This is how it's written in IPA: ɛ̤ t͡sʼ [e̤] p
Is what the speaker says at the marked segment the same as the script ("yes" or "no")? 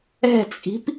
no